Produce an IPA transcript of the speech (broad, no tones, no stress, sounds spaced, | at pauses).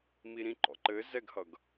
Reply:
m i ɾ ĩ ǃ ɔ̰ ǃ ɘ z ɛ ɡ h ʌ ɡ